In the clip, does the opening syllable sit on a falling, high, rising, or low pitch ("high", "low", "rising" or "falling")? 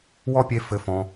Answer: high